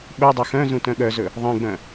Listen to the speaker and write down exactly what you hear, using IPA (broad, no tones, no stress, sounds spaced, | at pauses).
ɓ œ dˤ œ x œ̃ z ũ t œ̃ ɠ œ z ɵ | ðˤ ẽ ɡ͡b œ̃